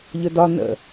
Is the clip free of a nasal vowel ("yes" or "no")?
yes